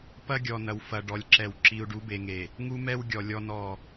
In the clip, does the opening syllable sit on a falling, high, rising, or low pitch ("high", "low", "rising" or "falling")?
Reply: high